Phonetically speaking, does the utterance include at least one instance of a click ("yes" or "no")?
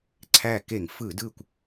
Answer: yes